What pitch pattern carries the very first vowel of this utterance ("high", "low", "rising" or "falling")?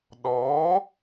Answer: rising